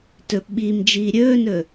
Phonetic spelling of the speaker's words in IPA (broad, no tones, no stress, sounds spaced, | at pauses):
t ɵ p ɓ iː m d͡ʒ iː ɾʲ ɵː n ɵː